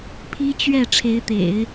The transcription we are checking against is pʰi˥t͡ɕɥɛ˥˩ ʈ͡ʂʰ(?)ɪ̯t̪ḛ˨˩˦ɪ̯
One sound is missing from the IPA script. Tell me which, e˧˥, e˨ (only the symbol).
e˧˥